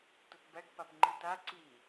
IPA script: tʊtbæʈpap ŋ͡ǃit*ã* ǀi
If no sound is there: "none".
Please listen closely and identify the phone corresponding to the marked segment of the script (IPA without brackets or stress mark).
a